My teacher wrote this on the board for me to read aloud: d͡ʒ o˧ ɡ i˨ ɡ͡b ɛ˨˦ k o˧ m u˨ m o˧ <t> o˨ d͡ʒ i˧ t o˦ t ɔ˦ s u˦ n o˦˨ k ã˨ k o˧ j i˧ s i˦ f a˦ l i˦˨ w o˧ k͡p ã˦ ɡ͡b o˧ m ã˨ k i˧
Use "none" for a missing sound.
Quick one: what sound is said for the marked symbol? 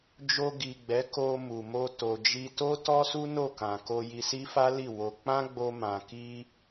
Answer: t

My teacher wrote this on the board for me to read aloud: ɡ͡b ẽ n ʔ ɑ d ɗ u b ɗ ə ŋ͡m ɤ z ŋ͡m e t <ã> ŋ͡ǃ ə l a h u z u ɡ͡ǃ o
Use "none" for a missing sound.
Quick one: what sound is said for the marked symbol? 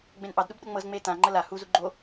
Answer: ã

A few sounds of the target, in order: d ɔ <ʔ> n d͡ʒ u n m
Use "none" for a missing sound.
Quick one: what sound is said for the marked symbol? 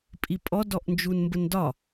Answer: ʔ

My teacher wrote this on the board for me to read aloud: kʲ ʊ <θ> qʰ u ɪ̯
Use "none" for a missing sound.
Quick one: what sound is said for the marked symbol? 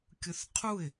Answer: θ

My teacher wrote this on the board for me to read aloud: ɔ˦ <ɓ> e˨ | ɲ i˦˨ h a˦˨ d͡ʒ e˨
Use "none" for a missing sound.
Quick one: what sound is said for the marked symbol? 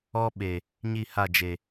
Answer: ɓ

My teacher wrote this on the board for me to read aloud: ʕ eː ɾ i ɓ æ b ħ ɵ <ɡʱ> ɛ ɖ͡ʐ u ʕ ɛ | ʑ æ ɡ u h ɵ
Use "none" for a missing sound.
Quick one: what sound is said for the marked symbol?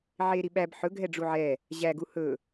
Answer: ɡʱ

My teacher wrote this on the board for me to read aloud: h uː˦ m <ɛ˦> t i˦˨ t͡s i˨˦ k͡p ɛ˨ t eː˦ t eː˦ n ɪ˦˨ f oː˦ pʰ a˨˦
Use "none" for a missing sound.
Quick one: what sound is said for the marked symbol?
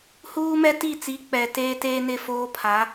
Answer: ɛ˦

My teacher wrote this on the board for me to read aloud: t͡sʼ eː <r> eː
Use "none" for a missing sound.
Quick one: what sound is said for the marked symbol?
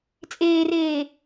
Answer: r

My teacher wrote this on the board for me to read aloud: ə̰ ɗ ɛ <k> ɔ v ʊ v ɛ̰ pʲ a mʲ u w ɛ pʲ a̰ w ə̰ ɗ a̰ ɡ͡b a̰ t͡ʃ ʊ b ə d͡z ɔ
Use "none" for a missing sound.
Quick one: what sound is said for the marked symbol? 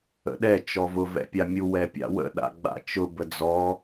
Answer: t͡ʃ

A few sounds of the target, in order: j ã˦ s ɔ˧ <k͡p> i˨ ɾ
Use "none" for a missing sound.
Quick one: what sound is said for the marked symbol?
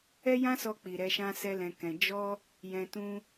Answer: k͡p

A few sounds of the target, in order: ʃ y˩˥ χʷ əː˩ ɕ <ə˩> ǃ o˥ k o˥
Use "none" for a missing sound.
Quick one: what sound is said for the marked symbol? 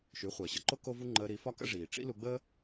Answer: ə˩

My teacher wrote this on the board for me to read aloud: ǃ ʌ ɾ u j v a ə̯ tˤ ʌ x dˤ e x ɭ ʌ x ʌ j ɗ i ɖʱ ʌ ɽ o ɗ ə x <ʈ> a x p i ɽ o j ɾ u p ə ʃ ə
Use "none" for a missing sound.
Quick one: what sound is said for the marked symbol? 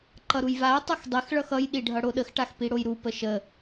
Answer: ʈ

